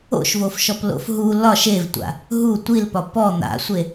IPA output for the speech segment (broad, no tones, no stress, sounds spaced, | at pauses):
o̰ ʃ v o f ʃ ɔ p l o̰ f ɦ u l ɒ ʃ e v tʷ a̰ | ɦ u tʷ i l p ɒ p ɔ n̪ a̰ sʷ e